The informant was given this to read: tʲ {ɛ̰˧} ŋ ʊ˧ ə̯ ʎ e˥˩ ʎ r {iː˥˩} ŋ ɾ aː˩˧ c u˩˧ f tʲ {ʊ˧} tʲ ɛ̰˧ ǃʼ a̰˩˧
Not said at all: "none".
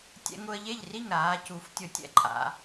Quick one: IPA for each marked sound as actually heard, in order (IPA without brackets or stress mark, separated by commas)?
ɛ̰˧, i˥˩, ʊ˧